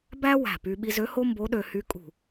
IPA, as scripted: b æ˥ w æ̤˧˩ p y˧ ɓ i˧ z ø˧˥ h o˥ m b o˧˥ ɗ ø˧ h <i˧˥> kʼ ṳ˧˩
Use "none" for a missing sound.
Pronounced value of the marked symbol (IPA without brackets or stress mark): y˧˥